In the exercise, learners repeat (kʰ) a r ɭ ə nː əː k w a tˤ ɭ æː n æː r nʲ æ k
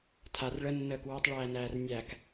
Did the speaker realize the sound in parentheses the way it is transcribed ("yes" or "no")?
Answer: no